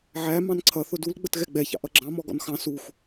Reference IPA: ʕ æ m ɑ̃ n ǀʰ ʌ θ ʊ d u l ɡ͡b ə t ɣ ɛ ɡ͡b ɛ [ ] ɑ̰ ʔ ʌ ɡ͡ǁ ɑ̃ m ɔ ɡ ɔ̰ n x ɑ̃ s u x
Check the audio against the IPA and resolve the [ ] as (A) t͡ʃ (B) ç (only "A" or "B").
B